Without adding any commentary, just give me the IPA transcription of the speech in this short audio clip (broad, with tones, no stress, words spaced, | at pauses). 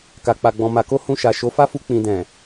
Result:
ka˧k͡pa˧ɡ͡bɔ̃˧ ma˨ ko˧ hũ˧ʃa˨ ʃo˨˦fa˦fu˧ k͡pĩ˨dɛ̃˨